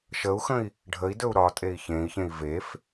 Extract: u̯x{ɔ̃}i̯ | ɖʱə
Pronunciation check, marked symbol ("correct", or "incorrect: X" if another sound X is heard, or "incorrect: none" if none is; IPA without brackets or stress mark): incorrect: ə̃